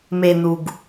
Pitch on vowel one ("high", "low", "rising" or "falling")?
low